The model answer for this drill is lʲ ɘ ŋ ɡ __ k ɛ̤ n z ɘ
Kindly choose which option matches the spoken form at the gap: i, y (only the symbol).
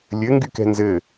y